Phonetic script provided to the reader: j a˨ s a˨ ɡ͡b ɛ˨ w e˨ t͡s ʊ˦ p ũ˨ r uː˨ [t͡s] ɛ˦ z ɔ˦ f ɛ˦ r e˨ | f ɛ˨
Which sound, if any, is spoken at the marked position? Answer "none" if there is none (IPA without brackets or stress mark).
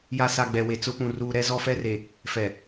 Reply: ɾ